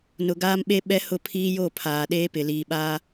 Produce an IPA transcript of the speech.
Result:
n ʊ˨ ɡ aː˦ m ɓ e˦ ɓ ɛ˦ h ʊ˦˨ pʰ iː˦ j o˦˨ pʰ aː˨ ɗ eː˦ p ɪ˨ l iː˨ ɓ aː˦

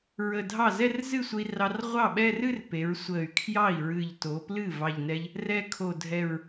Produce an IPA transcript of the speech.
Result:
ɹ ə˨˩ dʱ ɑ˥˩ z ɛ˥˧ r z ɨ˥˩ sʷ ə˧ i̯ r ɑ˧ r ʁʷ ɑ˥˩ ɓ ɛ˥˧ r ɨ˥˧ r p e˩˧ ɹ sʷ ə˨˩ y̯ kʰ j ɑ˥˩ i̯ ɹ ɨ˨˩ ʎ t o˩˧ p l ɨ˥˩ v ɑ˨˩ ʎ n ɛ˧ ʎ | r ɛ˧ kʰ o˨˩ dʱ ɛ˨˩ ɹ

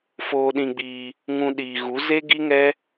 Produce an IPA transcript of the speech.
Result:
f oː˧ ɗ ĩ˧ ɡ͡b iː˧ | ŋ ũ˧ ɗ iː˨ ɣ u˨˦ z e˦ ɡ i˦ ŋ ɛ˦

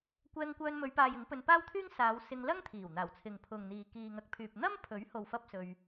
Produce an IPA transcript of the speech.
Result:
kʷ ɛː˧ ŋ kʷ œː˧ n m ɵ˨˧ ɥ p aː˨ j ɪ˨˥ ŋ p ɵ˧ n p aː˥ w t̪ʰ yː˥ ŋ s aː˨˧ w s ɪ˧ ŋ l ɐ˥ ŋ t̪ʰ iː˨˩ w n̪ aː˨˩ w t͡sʰ ɪ˨ ŋ pʰ ʊ˨ ŋ n̪ iː˨ k iː˨ ŋ ɐ˨˥ k̚ pʰ yː˨ p̚ n̪ ɐ˥ m pʰ ɵ˨˥ ɥ h o˨ w f ɐ˥ p̚ s ɵ˧ ɥ

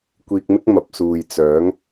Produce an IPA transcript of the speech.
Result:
kʷ iː˧ k̚ m ɪ˥ k̚ m ɐ˨ p̚ s uː˨ j t͡s œː˨˥ ŋ

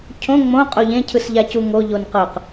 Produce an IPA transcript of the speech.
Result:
cʰ õ ŋ͡m õ qʼ o ʎ ẽ cʰ ɯ s ʎ a c u ŋ o ʎ o n q ɤ q

